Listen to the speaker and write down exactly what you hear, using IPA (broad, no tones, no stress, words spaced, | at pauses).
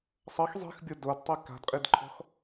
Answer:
sˤʌx zˤi̤xbʲo dodtˤi ka̤dqʼidǃʰɔ̤x